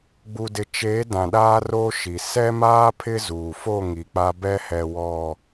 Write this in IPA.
ɡ͡b u˨ d ɪ˨ t͡ʃ eː˨˦ d ã˨ ɗ aː˦ r oː˦ ʃ i˨ s ɛ˦ m aː˦ pʰ ɪ˦ z uː˨ f o˦˨ ŋ i˨ k͡p a˦ b ɛ˦ h ɛ˨ w ɔ˨

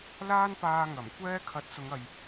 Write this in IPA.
l aː˥ n p aː˧ ŋ ɐ˨˩ m kʷ ɛː˥ kʰ ɐ˨˥ t̚ s ʊ˨˧ ŋ ɐ˨ j

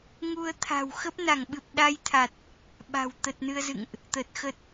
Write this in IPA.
ŋ u˧ ə̯ t̪ʰ a̤˨˩ w x ə˦˥ p̚ n a˧˩ ŋ ɓ ɨ˨˩ p̚ ɗ a˧ j t̪ʰ a˨˩ t̚ | ɓ a̤˨˩ w t̪ ə˨˩ t̚ n ɨ˧ ə̯ z ɨ̰˧˨ ŋ ʔ | t̪ ə˨˩ t̚ x ə˦˥ t̚

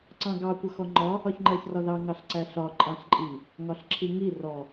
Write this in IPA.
ǀ ɑ̃ ɡ ɑ kʷ ʌ x ɔ ŋ͡ǃ ɒ | ɒ ç ŋ͡ǃ ɜ ç r ɒ ð ɑ ŋ ɑ ɬ ǀ æ ɬ ɒ ǃʼ ɑ̃ ɬ ǃʼ i | ŋ ɒ ɬ ǁʰ i ŋ i r ɔ

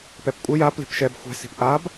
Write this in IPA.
p ɛ p kʷʼ ə j a p l i̤ p ʃ ɛ b xʷ ɛ̤ s i̤ p ʔ a b

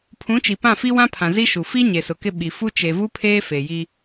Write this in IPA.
pʰ ũ˨˦ t͡ʃ i˨ p ã˦˨ f i˦ w ã˦ pʰ ã˨ z i˦ ʃ u˨ f i˦ ɲ e˨ s ʊ˨ k ɪ˦ ɓ i˨ f u˦ t͡ʃ e˨ v u˦ pʰ eː˦ f e˨ j i˦

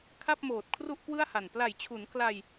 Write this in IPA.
kʰ a˥˩ p̚ m oː˨˩ t̚ kʰ r u˥˩ ʔ k w ɯ˥˩ a̯ h a˨˩ n p l a˨˩ j t͡ɕʰ u˩˦ n k l a˧ j

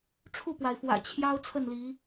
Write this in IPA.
ʈ͡ʂʰ u˥˨ p w a˩ ɪ̯ f w ä̰˨˩ t͡ɕʰ j ɑ˦ ʊ̯ t͡sʰ ə˥˨ n l i˨˦

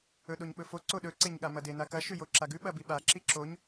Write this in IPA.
ɵ ɗ o ɲ ɓ ɵ f o ǀ o ɗ ɵ ǀ e ɲ ɠ a m ɐ d e n a k ɐ ʃ ʉ j o ǁ a ɡ ʉ ɓ ɐ b i ɓ a ǁ i ǁ o ɲ

